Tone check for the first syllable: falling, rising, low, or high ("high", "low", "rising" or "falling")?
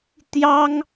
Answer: high